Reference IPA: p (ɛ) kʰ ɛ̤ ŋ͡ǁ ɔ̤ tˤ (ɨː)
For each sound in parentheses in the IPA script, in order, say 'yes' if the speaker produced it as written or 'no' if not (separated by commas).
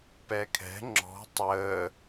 yes, no